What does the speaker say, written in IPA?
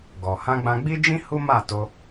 ɡ ɔ˨ h ã˧ ɡ͡b ã˧ ɡ͡b i˦ d͡ʒ ĩ˦ h u˦ m a˦˨ t o˧

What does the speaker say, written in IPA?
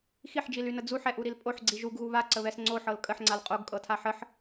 x i ħ d͡ʒ i l y n ə d͡z u ħ ɛ ʔ u ɾ i l pʼ o ħ ɡ͡ǀ i ʒ u ɡ ɣ u β a ǀ ə β ɛ s ŋ͡ǀ o ħ ɤ l kʼ ə ħ ŋ͡ǀ a l qʼ o ɡ kʼ ɤ tʰ a ħ ə ħ

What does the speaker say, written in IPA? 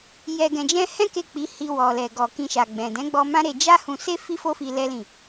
j ɛ˨ ɡ ɛ̃˨ d͡ʒ ɛ̃˧ h ɛ̃˦ k e˦˨ k͡p i˨˦ h i˧ w ɔ˨ l ɛ˨ ɡ ɔ˨ k ĩ˧ ʃ a˨ ɡ͡b ɛ̃˨ d ɛ̃˨˦ ɡ͡b ɔ˧ m ã˦ ɾ e˧ d͡ʒ a˦ h ũ˧ s e˦ f i˦ f o˦ f i˧ l ɛ˦ l ĩ˦˨

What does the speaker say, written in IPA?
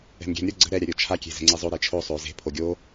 ɛ̤ m ɡʲ ɛ̤ m ɾʲ ə˞ ɡ͡ǀ ə̤ ɾ ɛ ɾʲ a ɾʲ o t͡ʃʰ a kʲ e̤ z ɛ̤ ŋ͡ǀ e zˤ o ɾ e t͡ʃʰ o sˤ o z e̤ pʰ o ɡʲ o

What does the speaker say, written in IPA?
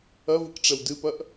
ɐ v ɨ k ʈ͡ʂ ɛ w d ɨ p ɐ ʔ

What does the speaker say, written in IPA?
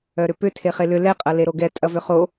œ ɾ ʏ p ʏ tʰ e χ e l ʏ l ɛ qʼ ɐ l e ɾ o ɡ ɛ tʼ ɐ v ʏ χ o

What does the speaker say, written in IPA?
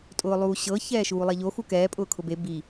tʼ ʊː lˠ uː ɕ ɤ ç ɛː ʃ uː lˠ ɛ ʎ o x u k ɛː pʼ ʊː kʰ ʊ b e b i

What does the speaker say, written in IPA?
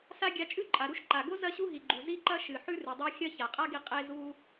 s a˥ ɡʲ a˧ t͡ʃʼ ʉ˥ ǃʼ a˩ ɾ u˥ ʃ ǃ a˩ ɡ o˥ z ɐ˥ ɕ u˥ ɦ i˩ ɡ͡ǃ u˩ z i˥ ǃ ɐ˥ ʃ ɨ˩ ħ ʉ˥ r ɨ˩ dˤ a˥ xʲ ɐ˥ ç a˩ qʼ a˥ ɡ i˧ qʼ e˧ z u˧

